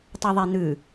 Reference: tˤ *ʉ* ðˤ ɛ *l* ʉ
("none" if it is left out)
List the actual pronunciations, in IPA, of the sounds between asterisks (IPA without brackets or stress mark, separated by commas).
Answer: ʉ, n̪